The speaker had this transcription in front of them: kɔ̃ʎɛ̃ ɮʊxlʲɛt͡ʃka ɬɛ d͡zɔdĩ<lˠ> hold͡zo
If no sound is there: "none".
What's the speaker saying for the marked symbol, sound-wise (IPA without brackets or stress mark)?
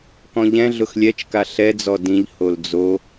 ʎ